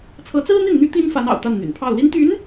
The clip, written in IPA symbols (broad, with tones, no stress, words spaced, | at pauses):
t͡sʰɤ˧˥t͡sɹ̩˥n̪i˥˩nn̪y˥ t̪i˥nfa˧˥nɑ̰˨˩ʊ̯ t̪a˥˩nn̪y̰˨˩npʰɑ˥˩ʊ̯ li˥nt̪y˧˥n